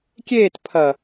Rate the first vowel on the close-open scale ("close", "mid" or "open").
mid